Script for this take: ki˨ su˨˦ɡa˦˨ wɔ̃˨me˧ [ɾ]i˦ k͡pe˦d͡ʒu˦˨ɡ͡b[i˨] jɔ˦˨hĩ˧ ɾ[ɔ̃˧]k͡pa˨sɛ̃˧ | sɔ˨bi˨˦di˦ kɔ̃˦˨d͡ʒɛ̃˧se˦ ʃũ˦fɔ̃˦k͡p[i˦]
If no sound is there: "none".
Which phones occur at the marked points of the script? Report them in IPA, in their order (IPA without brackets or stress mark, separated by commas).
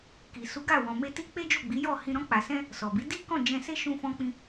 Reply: t, i˨˦, ɔ̃˧, ĩ˦